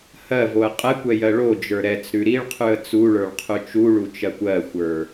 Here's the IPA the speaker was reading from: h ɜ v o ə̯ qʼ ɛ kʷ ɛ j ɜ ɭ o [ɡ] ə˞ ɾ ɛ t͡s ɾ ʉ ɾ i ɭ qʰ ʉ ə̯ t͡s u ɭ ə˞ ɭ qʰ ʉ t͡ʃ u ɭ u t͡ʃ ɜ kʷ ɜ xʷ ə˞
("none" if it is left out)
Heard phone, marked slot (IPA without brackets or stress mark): d͡ʒ